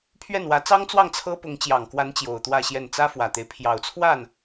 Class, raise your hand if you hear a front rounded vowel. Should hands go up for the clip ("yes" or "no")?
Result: no